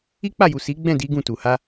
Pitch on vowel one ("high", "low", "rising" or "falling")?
high